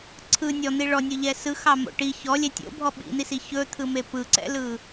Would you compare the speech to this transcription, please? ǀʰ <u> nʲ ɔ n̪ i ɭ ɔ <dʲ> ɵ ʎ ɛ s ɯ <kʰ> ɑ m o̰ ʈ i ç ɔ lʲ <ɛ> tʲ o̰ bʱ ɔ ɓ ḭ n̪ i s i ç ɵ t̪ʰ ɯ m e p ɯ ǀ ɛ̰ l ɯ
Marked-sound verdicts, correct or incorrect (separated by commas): incorrect, incorrect, incorrect, correct